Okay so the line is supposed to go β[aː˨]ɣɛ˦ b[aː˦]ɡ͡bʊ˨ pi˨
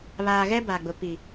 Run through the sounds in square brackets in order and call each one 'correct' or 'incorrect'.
correct, incorrect: aː˨

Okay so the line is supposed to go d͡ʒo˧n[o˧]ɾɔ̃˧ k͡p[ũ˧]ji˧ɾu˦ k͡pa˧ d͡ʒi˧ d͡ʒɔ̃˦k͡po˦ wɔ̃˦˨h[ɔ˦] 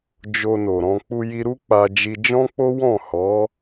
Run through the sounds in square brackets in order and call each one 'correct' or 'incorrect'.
incorrect: o˨, incorrect: u˧, incorrect: ɔ˨˦

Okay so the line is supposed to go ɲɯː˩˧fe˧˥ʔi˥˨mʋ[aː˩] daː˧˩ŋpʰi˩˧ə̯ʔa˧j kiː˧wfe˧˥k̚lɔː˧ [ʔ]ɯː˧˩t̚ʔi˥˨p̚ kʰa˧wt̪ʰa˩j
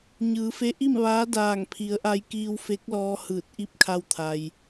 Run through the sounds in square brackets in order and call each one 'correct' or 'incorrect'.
incorrect: aː˧˥, incorrect: h

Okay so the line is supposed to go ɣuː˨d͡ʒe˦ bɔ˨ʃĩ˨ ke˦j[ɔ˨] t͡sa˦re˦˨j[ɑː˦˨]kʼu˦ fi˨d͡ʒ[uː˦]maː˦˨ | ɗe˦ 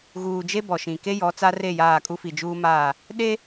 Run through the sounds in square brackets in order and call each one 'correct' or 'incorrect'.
incorrect: ɔ˨˦, incorrect: aː˦˨, correct

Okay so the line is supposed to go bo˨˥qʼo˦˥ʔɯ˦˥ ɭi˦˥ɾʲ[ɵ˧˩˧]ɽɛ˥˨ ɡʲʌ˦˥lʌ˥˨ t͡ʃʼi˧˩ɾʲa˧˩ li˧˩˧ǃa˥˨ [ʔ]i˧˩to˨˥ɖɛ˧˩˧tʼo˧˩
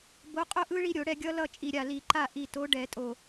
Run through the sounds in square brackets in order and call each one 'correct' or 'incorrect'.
incorrect: o˧˩˧, correct

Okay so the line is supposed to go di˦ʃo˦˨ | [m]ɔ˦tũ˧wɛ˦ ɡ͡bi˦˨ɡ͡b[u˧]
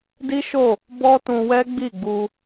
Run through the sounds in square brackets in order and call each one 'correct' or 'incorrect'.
incorrect: b, correct

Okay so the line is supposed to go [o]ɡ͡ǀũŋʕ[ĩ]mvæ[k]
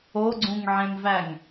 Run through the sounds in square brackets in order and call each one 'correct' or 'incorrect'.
correct, incorrect: ẽ, incorrect: ŋ

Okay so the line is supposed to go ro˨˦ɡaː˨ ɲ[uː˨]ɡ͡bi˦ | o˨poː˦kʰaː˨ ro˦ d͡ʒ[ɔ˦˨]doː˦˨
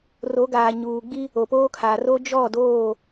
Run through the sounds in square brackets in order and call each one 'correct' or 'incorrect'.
correct, correct

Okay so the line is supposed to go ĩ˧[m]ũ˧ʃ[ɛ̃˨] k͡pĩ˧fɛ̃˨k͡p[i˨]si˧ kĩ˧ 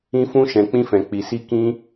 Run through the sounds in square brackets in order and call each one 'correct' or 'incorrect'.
incorrect: f, correct, correct

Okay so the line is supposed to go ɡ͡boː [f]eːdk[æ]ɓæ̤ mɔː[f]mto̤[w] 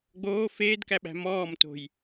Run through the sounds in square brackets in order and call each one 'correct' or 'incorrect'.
correct, correct, incorrect: none, incorrect: j

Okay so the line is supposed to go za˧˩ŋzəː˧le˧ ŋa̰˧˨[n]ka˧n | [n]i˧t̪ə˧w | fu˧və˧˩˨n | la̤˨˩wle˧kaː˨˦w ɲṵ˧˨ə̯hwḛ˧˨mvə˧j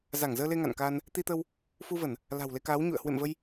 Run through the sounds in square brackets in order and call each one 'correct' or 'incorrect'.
correct, incorrect: t̪

